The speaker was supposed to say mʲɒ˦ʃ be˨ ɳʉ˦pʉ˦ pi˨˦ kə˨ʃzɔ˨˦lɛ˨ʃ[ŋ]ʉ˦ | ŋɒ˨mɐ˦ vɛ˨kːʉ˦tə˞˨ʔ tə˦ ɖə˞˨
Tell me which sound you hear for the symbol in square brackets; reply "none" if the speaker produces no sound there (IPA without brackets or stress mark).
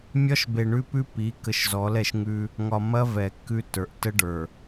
ŋ